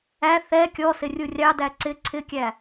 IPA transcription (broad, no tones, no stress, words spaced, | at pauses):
æ θɛ kʲɔsɪ rʲurʲɑdæ ǀɪ ǀʰɪkʲæ